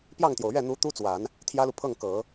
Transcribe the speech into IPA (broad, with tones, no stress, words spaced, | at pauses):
pjɑ˥˩ŋt̪jo˩ʊ̯ ɥɛ˥˩n̪u˧˥ t̪u˥t͡swa˨˩˦n | t̪ʰjä˥lu˨ pʰɤ˥˩ŋkɤ˨˩˦